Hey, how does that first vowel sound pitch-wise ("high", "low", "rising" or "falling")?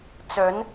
rising